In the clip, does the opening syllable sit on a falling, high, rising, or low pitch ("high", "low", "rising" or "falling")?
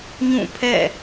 falling